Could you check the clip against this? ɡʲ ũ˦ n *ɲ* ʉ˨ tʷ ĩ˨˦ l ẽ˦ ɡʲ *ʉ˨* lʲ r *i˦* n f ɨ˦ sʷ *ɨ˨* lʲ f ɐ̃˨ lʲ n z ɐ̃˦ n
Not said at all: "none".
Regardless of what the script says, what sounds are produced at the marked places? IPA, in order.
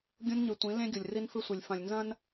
ɲ, u˨, i˦, ɨ˨

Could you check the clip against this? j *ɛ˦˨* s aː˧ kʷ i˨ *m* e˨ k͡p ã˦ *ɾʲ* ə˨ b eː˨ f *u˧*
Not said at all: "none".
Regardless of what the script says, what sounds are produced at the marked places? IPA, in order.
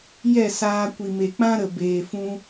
ɛ˦˨, m, ɾ, ũ˧

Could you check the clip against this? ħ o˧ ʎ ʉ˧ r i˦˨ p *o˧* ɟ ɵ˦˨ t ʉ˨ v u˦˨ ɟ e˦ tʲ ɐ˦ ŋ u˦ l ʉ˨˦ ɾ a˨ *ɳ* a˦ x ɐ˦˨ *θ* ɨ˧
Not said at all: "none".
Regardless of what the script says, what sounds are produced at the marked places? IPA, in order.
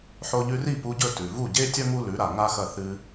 u˧, ŋ, θ

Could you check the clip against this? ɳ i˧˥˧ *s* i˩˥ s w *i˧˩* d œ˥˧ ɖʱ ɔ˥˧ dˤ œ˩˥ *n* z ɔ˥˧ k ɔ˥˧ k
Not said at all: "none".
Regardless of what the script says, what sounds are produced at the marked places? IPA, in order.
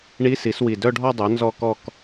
s, i˧˩, n

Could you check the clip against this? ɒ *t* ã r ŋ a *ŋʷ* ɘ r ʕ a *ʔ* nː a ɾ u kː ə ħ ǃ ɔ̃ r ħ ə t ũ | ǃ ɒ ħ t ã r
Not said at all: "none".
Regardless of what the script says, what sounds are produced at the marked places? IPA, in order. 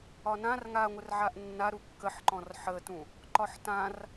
n, ŋʷ, ʔ

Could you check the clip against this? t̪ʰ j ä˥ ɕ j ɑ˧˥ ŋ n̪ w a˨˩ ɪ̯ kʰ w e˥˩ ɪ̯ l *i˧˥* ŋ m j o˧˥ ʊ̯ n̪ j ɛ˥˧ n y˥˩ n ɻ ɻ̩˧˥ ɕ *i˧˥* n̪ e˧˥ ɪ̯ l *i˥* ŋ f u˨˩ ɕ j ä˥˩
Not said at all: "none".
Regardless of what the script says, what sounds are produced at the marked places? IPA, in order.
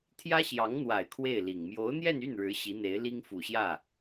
i˨˩, i˧˥, i˥

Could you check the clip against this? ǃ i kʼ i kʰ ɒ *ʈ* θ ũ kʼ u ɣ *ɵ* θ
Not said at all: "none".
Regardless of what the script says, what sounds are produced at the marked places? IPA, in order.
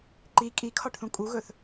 ʈ, ɵ

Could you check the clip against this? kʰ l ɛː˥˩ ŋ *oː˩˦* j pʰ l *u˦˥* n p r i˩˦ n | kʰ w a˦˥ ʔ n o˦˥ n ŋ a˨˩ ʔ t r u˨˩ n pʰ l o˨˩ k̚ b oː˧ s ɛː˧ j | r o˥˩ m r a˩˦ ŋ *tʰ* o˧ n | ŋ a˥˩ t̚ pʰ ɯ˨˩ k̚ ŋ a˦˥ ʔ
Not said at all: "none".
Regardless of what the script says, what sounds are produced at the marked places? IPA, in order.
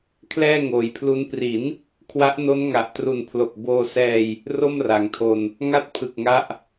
oː˩˦, u˦˥, tʰ

